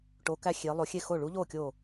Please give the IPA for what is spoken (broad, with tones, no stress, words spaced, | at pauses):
ʈoː˧˥kæ˥˧ xʲeː˧˥lˠo˧˥ xʲe˥˩xo˥˩ ɭu˧˥ʎoː˥˩ kʲoː˥˩